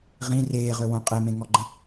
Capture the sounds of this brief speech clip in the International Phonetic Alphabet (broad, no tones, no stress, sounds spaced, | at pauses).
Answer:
ʁ ĩ r eː ʁ ø w õ qʼ e m ẽ ŋ ɔ ɡ͡ǃ ə̃